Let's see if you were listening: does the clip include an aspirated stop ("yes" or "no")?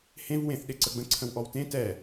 yes